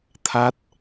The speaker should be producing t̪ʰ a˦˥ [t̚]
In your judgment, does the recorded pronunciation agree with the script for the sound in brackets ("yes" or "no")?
yes